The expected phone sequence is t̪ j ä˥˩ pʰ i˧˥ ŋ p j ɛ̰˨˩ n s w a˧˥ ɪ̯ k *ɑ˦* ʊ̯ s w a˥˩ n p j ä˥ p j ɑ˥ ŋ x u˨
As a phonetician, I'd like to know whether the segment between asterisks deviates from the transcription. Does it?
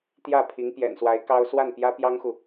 yes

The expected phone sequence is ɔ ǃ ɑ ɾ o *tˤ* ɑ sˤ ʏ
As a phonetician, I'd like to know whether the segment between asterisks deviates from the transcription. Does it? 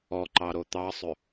yes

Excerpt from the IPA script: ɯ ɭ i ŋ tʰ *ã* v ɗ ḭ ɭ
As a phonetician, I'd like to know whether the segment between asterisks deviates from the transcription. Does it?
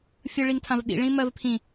no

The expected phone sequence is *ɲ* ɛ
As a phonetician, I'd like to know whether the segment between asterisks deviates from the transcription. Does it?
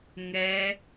yes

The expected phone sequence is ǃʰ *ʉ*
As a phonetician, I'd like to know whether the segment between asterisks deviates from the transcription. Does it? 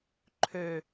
yes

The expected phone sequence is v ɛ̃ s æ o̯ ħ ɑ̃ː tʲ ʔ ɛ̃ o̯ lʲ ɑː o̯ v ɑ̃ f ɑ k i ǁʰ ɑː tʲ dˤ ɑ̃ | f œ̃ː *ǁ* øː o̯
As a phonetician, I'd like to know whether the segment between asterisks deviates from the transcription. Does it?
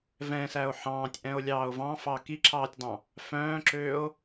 no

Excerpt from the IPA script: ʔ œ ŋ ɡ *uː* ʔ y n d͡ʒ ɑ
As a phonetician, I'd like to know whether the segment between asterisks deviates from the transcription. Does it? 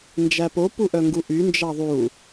yes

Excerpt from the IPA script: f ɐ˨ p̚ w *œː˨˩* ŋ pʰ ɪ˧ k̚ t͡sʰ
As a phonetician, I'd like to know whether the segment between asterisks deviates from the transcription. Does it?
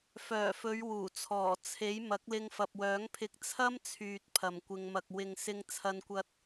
yes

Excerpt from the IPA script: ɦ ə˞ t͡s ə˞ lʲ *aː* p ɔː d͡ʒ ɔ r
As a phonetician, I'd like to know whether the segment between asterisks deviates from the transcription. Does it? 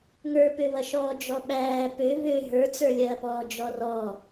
yes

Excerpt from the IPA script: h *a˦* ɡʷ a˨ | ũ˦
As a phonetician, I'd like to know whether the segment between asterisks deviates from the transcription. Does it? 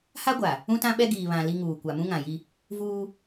no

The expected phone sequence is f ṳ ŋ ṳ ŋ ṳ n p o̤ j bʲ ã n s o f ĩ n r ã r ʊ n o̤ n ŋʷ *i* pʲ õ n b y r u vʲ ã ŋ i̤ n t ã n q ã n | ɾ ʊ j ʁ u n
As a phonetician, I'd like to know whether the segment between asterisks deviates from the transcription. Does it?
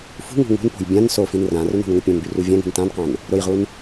no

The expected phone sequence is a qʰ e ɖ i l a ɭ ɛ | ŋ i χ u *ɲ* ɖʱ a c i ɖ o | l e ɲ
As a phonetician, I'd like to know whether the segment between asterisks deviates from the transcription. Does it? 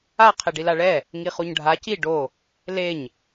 no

